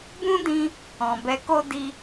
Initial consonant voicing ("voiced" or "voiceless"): voiced